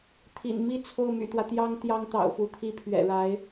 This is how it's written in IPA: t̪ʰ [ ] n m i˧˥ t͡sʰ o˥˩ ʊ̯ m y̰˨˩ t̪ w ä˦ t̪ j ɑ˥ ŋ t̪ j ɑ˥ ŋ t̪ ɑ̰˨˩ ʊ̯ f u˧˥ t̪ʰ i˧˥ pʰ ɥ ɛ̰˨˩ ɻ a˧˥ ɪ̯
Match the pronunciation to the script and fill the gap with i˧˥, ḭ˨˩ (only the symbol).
ḭ˨˩